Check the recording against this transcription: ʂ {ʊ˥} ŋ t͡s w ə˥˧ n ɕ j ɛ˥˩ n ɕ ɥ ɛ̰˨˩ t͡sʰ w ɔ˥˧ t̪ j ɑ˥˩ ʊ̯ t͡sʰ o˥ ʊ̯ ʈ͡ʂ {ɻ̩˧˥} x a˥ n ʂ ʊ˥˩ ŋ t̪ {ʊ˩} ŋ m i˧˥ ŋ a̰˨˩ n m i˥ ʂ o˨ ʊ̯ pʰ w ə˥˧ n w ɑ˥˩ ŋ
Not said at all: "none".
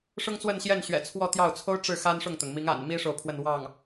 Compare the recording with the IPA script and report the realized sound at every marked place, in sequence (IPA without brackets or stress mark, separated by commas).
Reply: ʊ˥, ɻ̩˥˩, ʊ˩